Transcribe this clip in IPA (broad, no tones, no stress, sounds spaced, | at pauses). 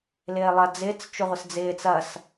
l ɪː lˠ ɐ d͡z ɪː t͡s t͡ʃ ʊ ʁʷ ɪ s d͡z ɪː t͡s ɐ s